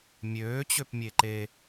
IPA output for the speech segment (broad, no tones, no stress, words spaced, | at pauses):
mʲøːt͡ɕøpmʲe ǃe